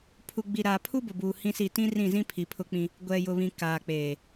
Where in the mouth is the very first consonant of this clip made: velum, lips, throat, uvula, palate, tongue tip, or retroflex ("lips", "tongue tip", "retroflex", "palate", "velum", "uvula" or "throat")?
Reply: lips